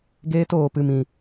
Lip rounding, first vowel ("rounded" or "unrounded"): unrounded